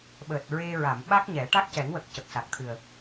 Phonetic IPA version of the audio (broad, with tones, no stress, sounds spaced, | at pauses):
ɓ əː˨˩ t̚ ɹ e˧ ɹ a˨˩˨ m ɓ a˦˥ k̚ ɲ ɛ˨˩˦ ʈ a˦˥ k̚ c ɛ˨˩˦ ŋ w ə˨˩ k̚ c ə˨˩ k̚ s a˨˩ k̚ t̪ʰ ɨ˨˩ ə̯